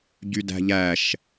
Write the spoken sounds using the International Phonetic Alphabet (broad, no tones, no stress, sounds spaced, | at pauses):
ɟ y d æ̤ ʎ æ ʃ